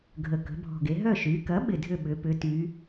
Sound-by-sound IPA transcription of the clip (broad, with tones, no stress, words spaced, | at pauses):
ɡʱə˨˩ kə̤˩˧bʱɔ̤˨˩ɡe˩˧ɦœ˥˩ ʃy˩˧kɐ˩˥ ɓɪ˨˩dʱʏ˥˩ ɓʏ˩˧pʏ˩˧ty˩˧